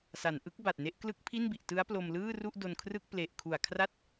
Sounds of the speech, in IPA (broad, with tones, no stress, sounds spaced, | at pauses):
s a˩˦ n ʔ ɯ˦˥ k̚ b a˨˩ t̚ n e˦˥ ʔ k l ɯ˦˥ k̚ pʰ i˥˩ n b i˨˩ ʔ t ɯ˦˥ a̯ p l o˧ m l ɯː˥˩ r u˥˩ ʔ d o˧ n kʰ r ɯ˥˩ k̚ p l e˨˩ ʔ kʰ u˨˩ a̯ kʰ r a˥˩ t̚